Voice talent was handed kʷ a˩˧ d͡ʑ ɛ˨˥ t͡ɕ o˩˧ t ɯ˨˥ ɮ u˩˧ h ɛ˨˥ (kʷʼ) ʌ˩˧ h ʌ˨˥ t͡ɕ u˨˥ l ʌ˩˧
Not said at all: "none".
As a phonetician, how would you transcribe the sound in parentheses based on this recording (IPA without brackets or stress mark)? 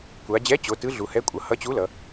kʷʼ